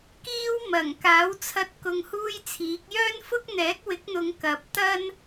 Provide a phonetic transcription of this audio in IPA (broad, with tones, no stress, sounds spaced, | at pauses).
k iː˥ w m ɐ˨˩ ŋ k aː˨˥ w t͡sʰ ɐ˧ t̚ k ʊ˧ ŋ h uː˥ j t͡sʰ iː˨˥ k̚ j œː˥ n f ʊ˥ k̚ n̪ ɛː˨˥ k̚ w ɪ˨˥ k̚ n̪ ʊ˨˧ ŋ k ɐ˨˥ p̚ t̪ ɐ˥ n